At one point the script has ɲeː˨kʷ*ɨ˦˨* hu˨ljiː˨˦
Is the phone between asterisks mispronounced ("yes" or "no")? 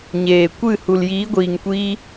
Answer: no